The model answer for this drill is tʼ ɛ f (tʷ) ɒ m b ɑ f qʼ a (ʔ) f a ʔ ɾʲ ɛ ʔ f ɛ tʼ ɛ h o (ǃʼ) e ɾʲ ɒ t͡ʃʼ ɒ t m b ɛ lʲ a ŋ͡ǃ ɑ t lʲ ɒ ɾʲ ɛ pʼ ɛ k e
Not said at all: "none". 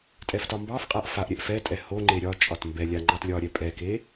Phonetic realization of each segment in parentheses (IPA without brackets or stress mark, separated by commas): t, ʔ, ŋ͡ǃ